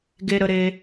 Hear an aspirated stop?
no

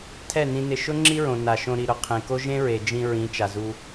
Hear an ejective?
no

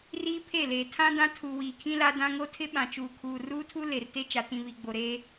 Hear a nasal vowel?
yes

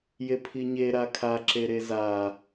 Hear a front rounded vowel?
no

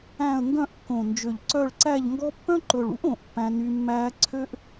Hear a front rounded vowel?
yes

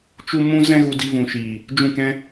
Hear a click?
no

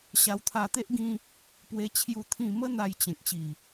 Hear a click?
no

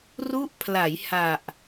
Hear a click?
no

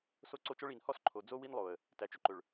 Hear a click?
yes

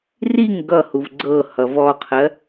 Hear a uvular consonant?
yes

